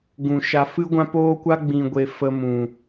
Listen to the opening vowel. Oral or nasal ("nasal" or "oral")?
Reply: nasal